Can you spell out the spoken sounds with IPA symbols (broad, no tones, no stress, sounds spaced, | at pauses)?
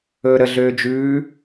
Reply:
ɵː ɾ ə ɮ øː d͡ʒ ʉː